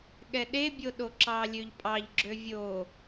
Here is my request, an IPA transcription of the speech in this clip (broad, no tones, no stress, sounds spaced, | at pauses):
ɠ ɛ ɗ e bʲ o ɗ o ǁ ɑ lʲ ø ʎ pʼ ɑ ʎ ɡ͡ǁ ø vʲ o